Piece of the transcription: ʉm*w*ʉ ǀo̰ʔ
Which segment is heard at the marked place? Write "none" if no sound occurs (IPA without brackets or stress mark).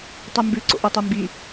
b